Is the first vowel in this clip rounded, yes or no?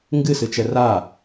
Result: no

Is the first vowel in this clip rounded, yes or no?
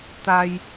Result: no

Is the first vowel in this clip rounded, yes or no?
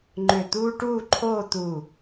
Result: yes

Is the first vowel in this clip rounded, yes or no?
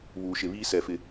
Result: yes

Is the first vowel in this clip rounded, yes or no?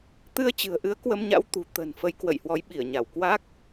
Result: no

